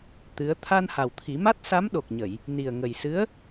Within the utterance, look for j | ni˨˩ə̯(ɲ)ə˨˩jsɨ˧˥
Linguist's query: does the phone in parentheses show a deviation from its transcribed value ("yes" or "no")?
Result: yes